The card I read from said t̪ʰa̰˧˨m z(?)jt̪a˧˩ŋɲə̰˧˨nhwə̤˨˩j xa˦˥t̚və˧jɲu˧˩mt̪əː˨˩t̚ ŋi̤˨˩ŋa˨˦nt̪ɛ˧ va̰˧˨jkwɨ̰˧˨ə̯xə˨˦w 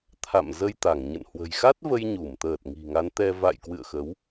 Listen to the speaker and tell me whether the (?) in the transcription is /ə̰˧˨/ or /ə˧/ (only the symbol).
ə˧